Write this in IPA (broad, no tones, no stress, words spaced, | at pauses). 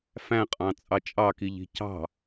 fæ̃qʼɑ̃ t͡sʼɑt͡ʃʼɑkiʎi̤ cɑ̤